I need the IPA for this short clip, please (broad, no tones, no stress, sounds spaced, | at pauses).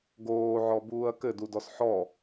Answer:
ɡ oː ʕ ɔ b uː ɐ̯ k ɘ d u d ɔ s ħ ɔ